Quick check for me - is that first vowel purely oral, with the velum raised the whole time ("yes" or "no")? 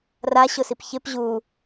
yes